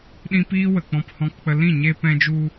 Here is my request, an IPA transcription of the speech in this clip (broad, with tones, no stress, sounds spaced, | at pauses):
ɗ ĩ˦ p iː˦ w ə˨ k͡p ɔ̃˧ p h ɔ̃˧ k k͡p ə˧ l ĩ˦˨ ɲ e˧ p ɛ̃˧ d͡ʒ u˧